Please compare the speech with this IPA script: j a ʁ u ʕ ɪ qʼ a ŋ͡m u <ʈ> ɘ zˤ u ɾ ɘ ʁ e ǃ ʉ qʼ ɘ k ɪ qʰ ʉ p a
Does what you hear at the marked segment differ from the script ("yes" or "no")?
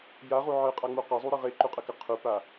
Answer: yes